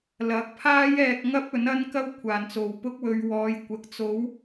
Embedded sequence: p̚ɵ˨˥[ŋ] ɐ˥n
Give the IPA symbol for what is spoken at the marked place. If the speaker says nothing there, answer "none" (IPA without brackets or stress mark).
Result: n